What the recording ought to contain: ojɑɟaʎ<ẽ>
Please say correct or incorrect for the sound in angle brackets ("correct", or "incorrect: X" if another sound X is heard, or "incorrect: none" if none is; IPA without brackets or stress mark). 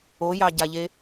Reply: incorrect: e